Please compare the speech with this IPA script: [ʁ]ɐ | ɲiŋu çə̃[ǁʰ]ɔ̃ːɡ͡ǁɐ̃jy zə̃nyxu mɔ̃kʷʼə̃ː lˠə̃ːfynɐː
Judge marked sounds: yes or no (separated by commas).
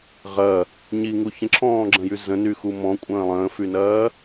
yes, yes